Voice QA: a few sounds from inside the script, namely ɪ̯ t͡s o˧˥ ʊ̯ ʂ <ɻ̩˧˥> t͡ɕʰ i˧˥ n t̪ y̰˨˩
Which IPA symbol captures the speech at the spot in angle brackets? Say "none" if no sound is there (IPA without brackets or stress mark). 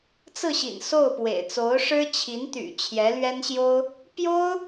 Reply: ɻ̩˥